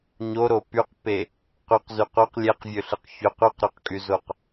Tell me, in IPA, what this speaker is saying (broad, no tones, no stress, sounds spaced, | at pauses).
ɲ o ɾ o p y q p e | q y q z y q o q lʲ e q vʲ ø ɬ ɯ q ç ø q y q ɾ ø q kʼ y z o q